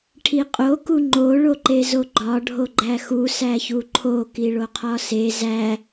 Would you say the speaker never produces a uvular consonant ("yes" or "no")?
no